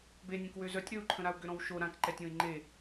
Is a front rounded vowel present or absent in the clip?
present